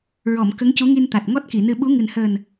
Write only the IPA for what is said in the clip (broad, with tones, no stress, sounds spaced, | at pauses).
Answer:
ɹ ɔ˨˩˨ m k ə˧˥ ŋ c u˧˥ ŋ i˧ n t̪ a˨˩ t̚ ŋ ɔ˦˥ t̚ k i˨˩˨ n ɨ˧ ɓ u˧˥ ŋ ɨ˨˩ n h əː˨˩ n